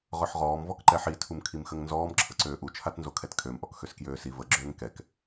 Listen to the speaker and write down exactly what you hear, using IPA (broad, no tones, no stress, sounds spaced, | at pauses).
ʁ œ ħ ʁ ɔː m v ɔ k ǃ ɛ ħ i tʰ u m kʰ i m x ə ŋ n z ɔː m ǁʰ ə ǀ øː ʔ u t͡ʃʰ a t n z o kʰ ɛ t kʰ ø m ʔ ɔ k x ø s k j øː s i v ə ɡ͡ǁ øː ŋ k ɛ k